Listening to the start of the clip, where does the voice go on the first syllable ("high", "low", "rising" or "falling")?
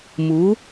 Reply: rising